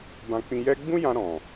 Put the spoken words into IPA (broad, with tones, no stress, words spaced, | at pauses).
bã˧k͡pĩ˧jɛ˦ ɡ͡bũ˦jã˧ ɾɔ̃˨